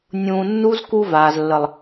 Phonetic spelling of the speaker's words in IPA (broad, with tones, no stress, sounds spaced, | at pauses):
nʲ ũː˧ nː u˦ z k u˧ v aː˨ z lː ə˨ lˠ